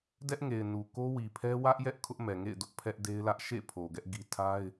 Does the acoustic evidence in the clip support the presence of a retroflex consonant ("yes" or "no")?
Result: no